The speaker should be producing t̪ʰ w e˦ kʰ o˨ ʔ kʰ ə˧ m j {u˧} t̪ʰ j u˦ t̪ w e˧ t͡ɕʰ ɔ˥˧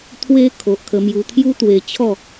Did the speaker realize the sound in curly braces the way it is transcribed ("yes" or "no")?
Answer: yes